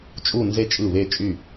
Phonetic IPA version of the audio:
t͡ʃʼu˥˨nze˥˨ t͡ʃʼɯ˧˩βe˧˩t͡ʃʼy˧˩

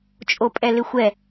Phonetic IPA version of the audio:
t͡ʃʼopʼɛlɪxʷɛ

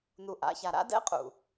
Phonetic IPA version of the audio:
nu˨ʔa̰˨˦ça˨ ɾa̰˦dɛ̰˦qʼṵ˨

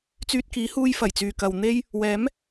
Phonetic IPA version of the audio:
t͡syː˧t̚kiː˨˥huː˧j fɐ˨˩jt͡syː˨kɐ˨w n̪e˥j | wɛː˨˥m

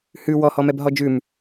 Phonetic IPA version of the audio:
hʉ wɔhɔmɛb ɦɔd͡ʒʉm

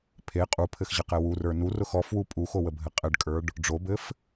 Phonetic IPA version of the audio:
pʰe qʼupʰɘxʑəqɛ wurə˞ nurʊx ɔfwu pʼuxowəbʱɘ qʼɘɖkʼə˞ɖ | ɖ͡ʐobɘf

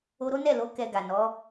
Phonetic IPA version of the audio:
o˧ɾo˦nɛ˦˨lo˨˦ kɛ˧ɡa˨nɔ˨˦

